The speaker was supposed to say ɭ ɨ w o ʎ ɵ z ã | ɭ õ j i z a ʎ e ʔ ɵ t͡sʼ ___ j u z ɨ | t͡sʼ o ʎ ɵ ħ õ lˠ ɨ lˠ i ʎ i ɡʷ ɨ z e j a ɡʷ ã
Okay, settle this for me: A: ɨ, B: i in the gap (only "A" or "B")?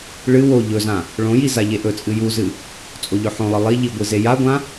A